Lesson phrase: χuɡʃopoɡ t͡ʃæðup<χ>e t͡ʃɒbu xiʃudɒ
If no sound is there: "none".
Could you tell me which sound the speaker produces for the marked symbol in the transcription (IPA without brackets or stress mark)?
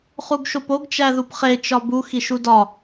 χ